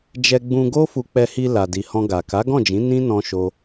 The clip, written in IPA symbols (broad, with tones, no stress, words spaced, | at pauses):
d͡ʒɛ˧ɡ͡bũ˧ɡo˦ fu˧k͡pɛ˧hi˧ la˨di˨ hɔ̃˧ɡa˨ ka˨˦ɡɔ̃˦˨d͡ʒĩ˨˦ nĩ˦ nɔ̃˦ʃo˦